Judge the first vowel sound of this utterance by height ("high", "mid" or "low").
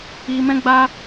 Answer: high